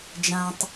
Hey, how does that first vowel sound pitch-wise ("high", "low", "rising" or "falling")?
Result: low